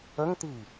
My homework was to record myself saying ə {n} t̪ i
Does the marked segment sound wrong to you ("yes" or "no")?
yes